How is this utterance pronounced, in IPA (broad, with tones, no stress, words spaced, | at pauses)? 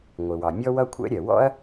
ŋʷɪ˩wɑ˩ mʲɔ˥wʌ˥kʷʰɛ̰˥ ɾʲɜ˩wɔ̰˥ɐ̯